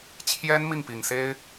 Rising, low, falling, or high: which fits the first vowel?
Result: high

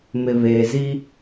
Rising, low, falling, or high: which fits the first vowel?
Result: low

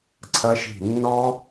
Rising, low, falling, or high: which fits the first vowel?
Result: high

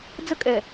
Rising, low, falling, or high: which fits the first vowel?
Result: high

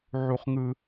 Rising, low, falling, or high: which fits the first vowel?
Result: high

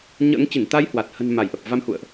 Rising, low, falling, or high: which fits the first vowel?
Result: rising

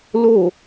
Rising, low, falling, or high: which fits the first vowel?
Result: falling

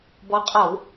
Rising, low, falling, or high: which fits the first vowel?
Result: rising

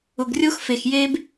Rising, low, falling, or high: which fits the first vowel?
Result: low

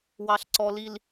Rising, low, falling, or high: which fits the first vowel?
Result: low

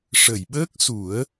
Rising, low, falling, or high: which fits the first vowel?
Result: low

